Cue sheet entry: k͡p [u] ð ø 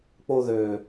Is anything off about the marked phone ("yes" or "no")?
yes